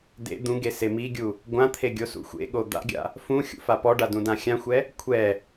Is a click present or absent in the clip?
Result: absent